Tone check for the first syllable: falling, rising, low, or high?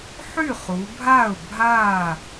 falling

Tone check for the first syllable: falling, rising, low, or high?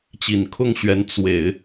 low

